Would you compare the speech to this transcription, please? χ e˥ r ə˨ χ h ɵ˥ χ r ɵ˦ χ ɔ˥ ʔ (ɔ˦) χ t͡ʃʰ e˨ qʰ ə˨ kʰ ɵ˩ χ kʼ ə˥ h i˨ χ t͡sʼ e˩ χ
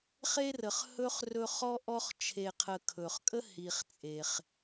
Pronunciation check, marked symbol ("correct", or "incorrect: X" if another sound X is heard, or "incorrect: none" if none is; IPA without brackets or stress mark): correct